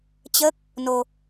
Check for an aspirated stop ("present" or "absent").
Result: absent